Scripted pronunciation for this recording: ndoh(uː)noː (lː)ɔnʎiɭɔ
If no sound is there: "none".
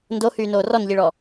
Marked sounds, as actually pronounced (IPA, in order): yː, r

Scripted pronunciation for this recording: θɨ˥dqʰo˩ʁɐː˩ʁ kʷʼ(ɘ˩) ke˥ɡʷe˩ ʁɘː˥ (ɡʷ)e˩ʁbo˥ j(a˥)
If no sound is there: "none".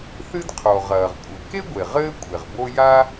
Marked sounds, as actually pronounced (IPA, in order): ɘ˩, kʷʼ, a˥

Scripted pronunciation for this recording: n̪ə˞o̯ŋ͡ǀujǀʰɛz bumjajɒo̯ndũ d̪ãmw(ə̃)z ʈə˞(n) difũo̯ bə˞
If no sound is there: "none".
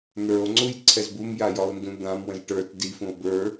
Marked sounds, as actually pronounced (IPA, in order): ə̃, t

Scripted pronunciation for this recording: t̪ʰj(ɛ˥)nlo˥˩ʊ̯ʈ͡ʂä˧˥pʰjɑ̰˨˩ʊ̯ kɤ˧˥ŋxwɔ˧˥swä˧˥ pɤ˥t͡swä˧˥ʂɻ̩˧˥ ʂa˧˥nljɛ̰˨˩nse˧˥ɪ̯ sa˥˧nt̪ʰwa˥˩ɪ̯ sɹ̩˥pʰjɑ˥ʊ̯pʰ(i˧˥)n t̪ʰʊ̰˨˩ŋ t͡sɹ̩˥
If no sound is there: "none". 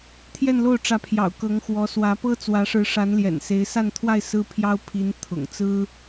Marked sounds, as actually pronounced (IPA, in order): ɛ˥˧, i˧˥

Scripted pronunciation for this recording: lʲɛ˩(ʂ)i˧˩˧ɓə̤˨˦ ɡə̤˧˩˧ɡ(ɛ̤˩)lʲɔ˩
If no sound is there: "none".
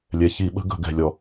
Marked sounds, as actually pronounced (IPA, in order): ç, ɛ̤˩

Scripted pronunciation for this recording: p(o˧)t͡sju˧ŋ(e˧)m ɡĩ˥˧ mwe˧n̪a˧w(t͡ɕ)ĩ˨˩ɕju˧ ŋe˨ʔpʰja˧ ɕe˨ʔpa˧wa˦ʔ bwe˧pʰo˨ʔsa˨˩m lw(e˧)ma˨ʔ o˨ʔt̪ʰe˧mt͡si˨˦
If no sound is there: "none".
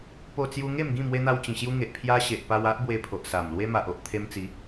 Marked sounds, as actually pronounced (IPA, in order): o˧, e˥˧, t͡ɕ, e˧

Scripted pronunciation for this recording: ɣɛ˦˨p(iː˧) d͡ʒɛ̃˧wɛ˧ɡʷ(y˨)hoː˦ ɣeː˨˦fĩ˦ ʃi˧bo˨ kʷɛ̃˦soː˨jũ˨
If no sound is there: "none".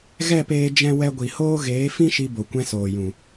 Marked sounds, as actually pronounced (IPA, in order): eː˧, i˨

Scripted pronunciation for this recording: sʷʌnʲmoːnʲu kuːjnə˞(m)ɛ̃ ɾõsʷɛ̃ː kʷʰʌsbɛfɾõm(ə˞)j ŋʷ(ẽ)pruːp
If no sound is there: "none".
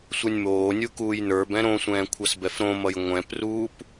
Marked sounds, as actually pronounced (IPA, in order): b, ʌ, ɛ̃

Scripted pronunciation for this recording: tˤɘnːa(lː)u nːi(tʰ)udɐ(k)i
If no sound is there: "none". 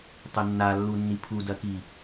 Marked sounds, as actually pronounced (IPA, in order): lː, pʰ, k

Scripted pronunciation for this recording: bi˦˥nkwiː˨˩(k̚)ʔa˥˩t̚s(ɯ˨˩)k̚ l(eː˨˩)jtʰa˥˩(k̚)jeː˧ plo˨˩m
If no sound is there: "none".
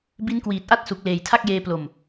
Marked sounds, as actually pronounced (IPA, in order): t̚, u˨˩, eː˨˩, k̚

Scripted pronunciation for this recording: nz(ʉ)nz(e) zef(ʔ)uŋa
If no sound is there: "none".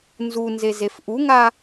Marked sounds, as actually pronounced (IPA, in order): u, e, ʔ

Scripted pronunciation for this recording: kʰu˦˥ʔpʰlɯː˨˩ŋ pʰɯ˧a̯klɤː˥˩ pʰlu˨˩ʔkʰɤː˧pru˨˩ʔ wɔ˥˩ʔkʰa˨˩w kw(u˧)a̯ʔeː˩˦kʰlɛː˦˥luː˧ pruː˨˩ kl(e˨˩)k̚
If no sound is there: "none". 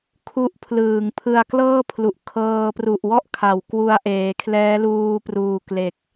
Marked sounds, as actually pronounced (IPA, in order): u˧, e˨˩

